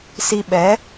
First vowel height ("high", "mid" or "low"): high